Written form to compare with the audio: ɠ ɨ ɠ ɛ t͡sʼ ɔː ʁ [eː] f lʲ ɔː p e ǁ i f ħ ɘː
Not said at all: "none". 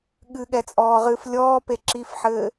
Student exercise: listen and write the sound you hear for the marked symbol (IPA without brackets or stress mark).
ɨː